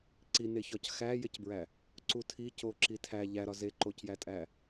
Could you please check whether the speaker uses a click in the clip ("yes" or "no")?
yes